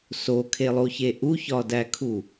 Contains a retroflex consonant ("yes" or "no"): no